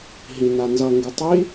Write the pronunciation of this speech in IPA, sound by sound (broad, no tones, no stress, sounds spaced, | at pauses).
ɦ ĩ n a n z ʌ ŋ ɡ ʉ tˤ i